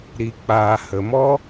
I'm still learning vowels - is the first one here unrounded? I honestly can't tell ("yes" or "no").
yes